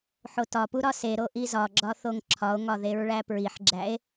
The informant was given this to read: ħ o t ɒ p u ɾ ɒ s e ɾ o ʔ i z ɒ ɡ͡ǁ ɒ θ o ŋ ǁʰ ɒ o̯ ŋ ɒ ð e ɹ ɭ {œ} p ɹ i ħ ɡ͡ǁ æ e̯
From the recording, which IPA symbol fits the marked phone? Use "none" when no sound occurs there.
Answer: æ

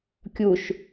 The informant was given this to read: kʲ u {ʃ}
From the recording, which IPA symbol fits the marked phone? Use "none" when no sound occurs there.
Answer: ʃ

